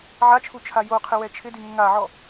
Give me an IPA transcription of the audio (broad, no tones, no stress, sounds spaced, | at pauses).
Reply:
ʕ a t͡ʃʰ u t͡ʃʰ a j o qʰ ɪ w ɛ t͡ʃʰ ɪ d i ŋ ʊ ŋ a ʕ ɔ